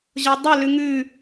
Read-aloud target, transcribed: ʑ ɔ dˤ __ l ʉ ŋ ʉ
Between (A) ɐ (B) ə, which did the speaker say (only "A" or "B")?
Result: B